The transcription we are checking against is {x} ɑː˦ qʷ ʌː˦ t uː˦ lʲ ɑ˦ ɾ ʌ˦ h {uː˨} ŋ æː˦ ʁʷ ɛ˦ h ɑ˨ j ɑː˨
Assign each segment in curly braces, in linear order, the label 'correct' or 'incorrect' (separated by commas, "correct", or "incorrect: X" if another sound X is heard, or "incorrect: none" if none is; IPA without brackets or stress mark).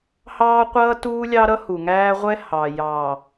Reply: incorrect: h, incorrect: u˨